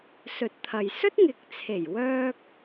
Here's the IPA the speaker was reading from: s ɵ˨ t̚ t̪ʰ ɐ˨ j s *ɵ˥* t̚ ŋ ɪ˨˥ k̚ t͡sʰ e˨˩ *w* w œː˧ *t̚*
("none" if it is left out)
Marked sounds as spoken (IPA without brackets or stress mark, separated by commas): ɵ˥, j, k̚